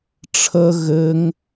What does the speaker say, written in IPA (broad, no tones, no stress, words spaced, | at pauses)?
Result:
ʈ͡ʂʰə ɣɘŋ